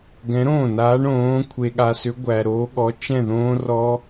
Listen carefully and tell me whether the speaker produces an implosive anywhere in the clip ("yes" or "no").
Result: yes